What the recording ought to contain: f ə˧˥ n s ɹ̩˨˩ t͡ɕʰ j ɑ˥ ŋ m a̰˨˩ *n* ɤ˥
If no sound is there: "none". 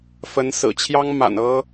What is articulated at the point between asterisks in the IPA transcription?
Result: n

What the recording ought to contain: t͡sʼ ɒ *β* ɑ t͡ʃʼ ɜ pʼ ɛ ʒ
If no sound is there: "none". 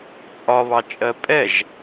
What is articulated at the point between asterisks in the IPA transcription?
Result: β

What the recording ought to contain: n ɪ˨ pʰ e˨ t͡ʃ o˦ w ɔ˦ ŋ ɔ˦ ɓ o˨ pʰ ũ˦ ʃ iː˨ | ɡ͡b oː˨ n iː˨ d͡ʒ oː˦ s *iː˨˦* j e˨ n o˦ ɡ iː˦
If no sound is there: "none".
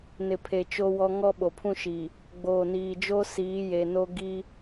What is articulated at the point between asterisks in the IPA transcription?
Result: iː˨˦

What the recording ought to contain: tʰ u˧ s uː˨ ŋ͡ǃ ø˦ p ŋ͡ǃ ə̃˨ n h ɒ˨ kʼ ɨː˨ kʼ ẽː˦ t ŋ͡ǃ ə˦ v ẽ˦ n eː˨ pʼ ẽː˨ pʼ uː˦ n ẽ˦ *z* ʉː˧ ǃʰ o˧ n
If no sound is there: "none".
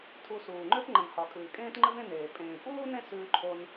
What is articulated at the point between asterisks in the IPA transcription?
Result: s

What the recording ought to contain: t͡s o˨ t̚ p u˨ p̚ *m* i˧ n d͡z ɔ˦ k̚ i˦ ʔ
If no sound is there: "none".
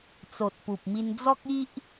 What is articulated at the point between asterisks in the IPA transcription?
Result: m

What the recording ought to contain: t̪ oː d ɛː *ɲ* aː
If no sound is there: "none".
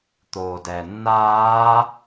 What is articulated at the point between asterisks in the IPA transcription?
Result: nː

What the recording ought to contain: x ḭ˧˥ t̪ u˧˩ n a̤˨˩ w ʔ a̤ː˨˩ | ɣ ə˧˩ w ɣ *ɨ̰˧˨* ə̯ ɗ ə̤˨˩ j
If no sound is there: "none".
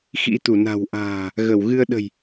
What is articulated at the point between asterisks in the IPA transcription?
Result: ɨ˧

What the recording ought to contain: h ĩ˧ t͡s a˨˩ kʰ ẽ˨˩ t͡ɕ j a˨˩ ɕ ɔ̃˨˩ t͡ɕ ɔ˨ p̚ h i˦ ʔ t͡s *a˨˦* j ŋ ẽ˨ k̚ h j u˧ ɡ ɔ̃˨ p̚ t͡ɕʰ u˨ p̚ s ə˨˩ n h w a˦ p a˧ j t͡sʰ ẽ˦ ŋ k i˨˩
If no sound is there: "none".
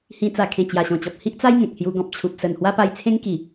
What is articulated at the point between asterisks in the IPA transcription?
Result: a˦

